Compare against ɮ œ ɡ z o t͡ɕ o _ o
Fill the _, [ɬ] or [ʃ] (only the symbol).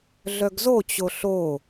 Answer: ɬ